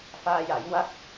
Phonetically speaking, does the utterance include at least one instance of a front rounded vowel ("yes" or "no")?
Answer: no